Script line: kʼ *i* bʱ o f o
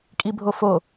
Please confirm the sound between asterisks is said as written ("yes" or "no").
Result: yes